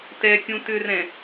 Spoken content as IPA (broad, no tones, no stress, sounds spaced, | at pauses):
t ɛ kʲ ũ t ʏ r ɛ̃